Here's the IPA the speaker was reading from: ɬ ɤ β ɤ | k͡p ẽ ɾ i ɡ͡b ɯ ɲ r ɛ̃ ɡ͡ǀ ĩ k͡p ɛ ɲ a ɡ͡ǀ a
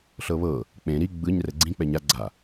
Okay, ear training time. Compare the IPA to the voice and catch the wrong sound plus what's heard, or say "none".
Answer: ɛ̃ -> ɛ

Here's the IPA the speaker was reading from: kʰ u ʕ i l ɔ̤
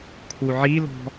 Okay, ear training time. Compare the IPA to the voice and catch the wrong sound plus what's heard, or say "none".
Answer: none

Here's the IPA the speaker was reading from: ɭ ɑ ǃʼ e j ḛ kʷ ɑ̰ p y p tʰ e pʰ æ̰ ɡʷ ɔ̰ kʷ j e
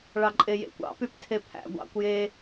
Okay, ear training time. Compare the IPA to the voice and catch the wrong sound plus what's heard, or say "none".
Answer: ɔ̰ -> ɑ̰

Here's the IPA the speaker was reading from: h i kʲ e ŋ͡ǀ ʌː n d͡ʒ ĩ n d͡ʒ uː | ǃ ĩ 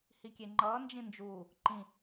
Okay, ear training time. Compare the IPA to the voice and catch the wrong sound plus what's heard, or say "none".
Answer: ŋ͡ǀ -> ŋ͡ǃ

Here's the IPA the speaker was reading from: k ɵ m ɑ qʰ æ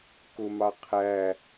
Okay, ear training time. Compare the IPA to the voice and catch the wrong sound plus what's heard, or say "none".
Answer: ɵ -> ʊ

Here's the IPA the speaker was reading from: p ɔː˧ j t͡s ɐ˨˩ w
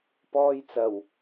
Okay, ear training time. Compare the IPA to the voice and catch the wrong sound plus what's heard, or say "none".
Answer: none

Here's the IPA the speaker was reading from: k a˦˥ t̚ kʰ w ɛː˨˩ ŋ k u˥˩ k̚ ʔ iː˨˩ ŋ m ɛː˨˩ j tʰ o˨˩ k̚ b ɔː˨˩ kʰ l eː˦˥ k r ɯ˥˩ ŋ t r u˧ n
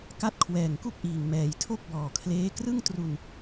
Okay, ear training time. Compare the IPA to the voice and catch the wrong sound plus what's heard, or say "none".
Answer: o˨˩ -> o˥˩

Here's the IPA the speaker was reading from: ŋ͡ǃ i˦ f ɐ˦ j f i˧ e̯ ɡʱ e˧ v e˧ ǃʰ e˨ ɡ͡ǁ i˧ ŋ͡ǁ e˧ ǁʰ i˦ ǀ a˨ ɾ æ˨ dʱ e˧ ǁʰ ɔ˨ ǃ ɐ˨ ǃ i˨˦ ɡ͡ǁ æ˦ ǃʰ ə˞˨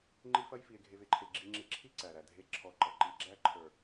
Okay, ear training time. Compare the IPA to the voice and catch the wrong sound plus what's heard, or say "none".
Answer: a˨ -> æ˨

